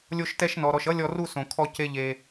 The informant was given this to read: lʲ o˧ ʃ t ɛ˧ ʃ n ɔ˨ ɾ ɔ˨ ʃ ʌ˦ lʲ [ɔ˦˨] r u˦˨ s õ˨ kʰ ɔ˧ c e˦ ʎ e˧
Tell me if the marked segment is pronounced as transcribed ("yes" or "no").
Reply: no